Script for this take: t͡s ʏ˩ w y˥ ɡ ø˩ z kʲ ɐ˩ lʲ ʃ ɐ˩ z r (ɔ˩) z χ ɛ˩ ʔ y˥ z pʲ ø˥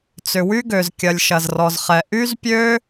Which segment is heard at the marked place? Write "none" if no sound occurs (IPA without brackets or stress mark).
ɔ˩